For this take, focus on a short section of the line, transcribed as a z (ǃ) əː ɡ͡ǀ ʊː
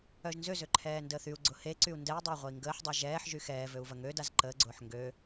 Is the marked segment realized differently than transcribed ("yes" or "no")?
no